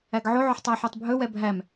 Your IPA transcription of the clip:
æɡʕoʕoħ tˤæħotˤbʱɵwɛ bʱæm

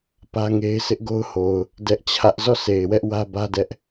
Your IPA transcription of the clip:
pä˦ŋe˦ɪ̯ sʰɪ˦ʔɡo˦ʊ̯ho˨ʊ̯ | dɛ˦ʔt͡ɕʰä˦ʔ zɔ˦˨sʰe˨ɪ̯ wɛ˦ʔwä˦ bä˦dɛ˦ʔ

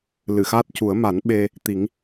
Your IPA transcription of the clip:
lɨ˨˩˨xaː˦˥t̚cu˨˩˦ə̯ ma˨˩˦nɓe˧ | t̪i˨˩˦ŋ

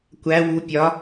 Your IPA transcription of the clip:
kʷæ wu pʲɒ

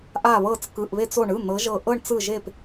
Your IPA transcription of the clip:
ʔa˧˩βɤ˧˩t͡s kɯ˩˧˩ʔβe˧˩t͡so˧˩ɳɯ˩˧˩ n̪ɤ˨˦ʒɤ˧˩ʔɤ˥˧ɳ t͡sɯ˧˩ʒe˧˩p

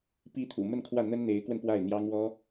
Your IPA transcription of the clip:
pi˧˥t̪ʰṵ˨˩ mə˥˧nkʰwä˥˩n̪ə˥n n̪e˧˥ɪ̯kwə˧n pwa˥˩ɪ̯n̪jɑ˥ŋwɔ˥

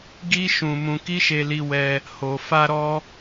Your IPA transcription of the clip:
ɡi˦ ʃũ˧ mũ˧ ki˦ʃe˧li˧ wɛ˧ | ho˨ fa˧ɾɔ˧

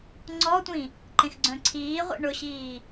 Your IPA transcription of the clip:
ŋ͡ǀɔtʷĩ | ǃẽxɡ͡ǀœ̃ǀʰiːʁʷḭ ɳʊɕiː

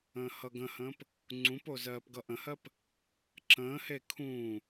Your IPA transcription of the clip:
ə̃ːhʌɡə̃hə̃ːp | ŋ͡ǀũpo zɜːpɡʌʔə̃hɜp | ǁə̃ːhe kʰũː

